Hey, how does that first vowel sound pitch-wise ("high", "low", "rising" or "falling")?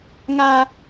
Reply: high